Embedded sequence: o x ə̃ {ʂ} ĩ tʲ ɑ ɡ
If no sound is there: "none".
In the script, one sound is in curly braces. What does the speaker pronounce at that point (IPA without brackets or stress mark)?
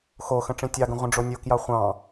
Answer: ʈ͡ʂ